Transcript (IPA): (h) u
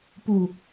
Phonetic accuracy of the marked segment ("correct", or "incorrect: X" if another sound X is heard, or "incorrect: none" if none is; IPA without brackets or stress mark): incorrect: p